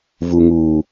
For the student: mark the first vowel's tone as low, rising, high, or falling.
low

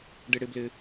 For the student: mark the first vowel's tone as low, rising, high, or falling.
low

